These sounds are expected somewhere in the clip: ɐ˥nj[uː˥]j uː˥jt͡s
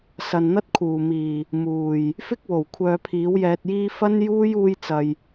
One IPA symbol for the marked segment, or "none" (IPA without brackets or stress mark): uː˥